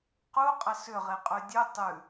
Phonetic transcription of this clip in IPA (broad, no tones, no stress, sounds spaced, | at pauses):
q u qʼ ə s ʏ ʁ e qʼ ʉ dʲ ʉ tˤ ʉ